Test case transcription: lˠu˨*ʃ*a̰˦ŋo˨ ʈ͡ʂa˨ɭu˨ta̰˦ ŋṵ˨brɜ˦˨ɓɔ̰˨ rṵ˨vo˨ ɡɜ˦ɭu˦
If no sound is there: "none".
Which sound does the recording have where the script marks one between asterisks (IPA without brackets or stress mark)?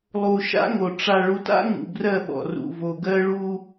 ʃ